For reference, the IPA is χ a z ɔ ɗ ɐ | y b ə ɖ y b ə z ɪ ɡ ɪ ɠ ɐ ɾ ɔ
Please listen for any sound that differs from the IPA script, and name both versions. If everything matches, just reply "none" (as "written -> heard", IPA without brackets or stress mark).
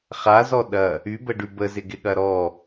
none